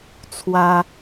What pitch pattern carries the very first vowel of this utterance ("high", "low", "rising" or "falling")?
high